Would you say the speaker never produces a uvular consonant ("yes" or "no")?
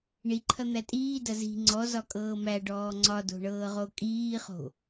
no